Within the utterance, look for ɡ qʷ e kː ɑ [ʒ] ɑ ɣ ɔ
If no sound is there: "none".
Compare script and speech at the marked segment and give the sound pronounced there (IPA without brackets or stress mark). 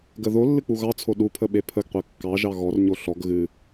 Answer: ʒ